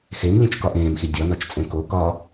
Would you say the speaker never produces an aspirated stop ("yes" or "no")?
yes